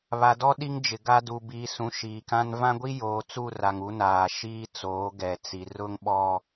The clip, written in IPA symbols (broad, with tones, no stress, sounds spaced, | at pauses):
β a˨ d ɔ˦ ɗ i˦ ŋ d͡ʒ ɪ˨ ɡ a˦ d u˨ b iː˨ s ũ˨ ʃ iː˨ k ã˦ n v ã˦ ɡʷ i˦ j oː˨˦ t͡s u˦˨ r a˨ ŋ u˦ n aː˨ ʃ iː˦ t͡s oː˨˦ ɡ ɛ˨ t͡s i˨ r ʊ˦ ŋ ɓ ɔ˦